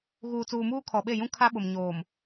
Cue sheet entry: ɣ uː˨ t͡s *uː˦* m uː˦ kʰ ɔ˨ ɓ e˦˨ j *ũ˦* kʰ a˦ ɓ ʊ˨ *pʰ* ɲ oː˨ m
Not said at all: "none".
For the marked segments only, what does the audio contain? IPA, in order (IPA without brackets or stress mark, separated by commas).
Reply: uː˨, ũ˦, m